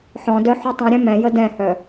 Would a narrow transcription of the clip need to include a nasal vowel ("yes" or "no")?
yes